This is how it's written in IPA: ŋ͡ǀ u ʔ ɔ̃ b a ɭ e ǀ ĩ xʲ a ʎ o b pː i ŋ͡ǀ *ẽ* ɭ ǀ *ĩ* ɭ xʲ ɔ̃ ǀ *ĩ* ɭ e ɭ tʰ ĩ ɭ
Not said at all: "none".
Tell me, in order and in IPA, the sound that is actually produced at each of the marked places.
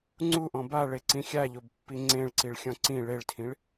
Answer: ẽ, i, ĩ

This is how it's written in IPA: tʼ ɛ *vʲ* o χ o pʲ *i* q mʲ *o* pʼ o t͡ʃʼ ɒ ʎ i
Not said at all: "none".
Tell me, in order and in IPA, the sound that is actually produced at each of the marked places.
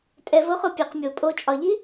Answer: v, e, o

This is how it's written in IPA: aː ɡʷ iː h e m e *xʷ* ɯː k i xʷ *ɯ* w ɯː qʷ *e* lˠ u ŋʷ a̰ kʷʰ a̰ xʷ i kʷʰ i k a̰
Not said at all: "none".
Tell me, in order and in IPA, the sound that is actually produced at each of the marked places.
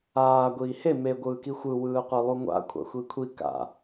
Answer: ɡʷ, ɯ, e

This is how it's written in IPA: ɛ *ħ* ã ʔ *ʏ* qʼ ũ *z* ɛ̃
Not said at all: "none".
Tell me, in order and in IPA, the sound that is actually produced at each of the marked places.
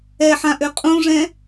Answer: ħ, ʏ, ʐ

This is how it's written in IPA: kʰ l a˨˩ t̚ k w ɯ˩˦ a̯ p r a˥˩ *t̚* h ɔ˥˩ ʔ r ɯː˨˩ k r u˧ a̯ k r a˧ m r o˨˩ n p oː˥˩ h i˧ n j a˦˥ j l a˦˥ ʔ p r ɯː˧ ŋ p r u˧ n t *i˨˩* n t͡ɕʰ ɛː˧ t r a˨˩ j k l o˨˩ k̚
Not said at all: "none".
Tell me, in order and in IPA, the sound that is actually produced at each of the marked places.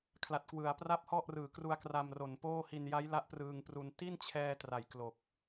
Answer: p̚, i˥˩

